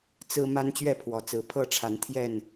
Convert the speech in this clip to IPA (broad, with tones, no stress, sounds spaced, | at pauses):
t͡s ɹ̩˦ m a˦ n t͡ɕ ɥ ɛ˥˨ pʰ w ɔ˨˩ t͡s ɹ̩˨˦ pʰ ɤ˥˨ ʈ͡ʂʰ a˨˦ n t̪ʰ j ɛ˥˨ n